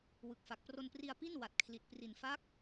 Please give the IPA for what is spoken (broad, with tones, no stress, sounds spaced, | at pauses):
w ɯ˨˩ k̚ f a˨˩ k̚ p r o˧ n p r i˧ a̯ p i˥˩ n w a˨˩ t̚ kʰ l i˨˩ t̚ p r i˨˩ n f a˦˥ k̚